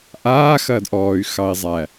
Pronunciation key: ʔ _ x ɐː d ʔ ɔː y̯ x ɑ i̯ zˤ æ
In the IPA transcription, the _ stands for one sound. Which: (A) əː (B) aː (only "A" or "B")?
B